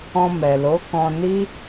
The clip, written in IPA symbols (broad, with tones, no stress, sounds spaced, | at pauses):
ɔ̃˧ m ɛ˨ l o˨˦ k ɔ̃˧ n i˦